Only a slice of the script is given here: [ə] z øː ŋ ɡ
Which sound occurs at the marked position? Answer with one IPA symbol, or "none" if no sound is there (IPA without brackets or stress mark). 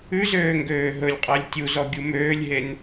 ʉ